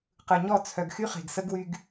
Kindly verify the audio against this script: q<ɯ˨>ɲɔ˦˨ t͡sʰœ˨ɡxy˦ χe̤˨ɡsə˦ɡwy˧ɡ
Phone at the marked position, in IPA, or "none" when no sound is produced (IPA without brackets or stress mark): ɯ˨